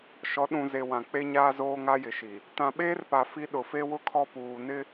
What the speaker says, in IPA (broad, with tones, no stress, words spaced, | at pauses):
ʃɔ˨˦ ɗũ˨ze˨ wã˨k͡pe˦ɲaː˦zoː˦ ŋa˦jɪ˨ʃi˨ | tã˨ɓeː˦rpa˨ fi˦ ɗʊ˨fe˦wʊ˦ kʰɔ˦ puː˨nɪ˦